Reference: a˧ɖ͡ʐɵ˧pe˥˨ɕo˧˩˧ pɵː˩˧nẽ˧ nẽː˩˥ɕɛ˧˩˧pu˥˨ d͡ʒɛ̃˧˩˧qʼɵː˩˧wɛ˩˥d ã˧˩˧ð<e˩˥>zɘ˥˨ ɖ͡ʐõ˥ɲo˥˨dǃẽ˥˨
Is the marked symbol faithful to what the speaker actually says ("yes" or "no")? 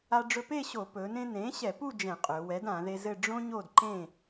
no